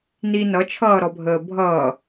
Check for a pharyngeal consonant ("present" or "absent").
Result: absent